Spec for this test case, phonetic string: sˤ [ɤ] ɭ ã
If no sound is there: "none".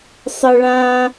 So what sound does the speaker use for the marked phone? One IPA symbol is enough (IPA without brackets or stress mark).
ɤ